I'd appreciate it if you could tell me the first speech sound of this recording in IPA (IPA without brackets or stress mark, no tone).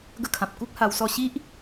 ɡ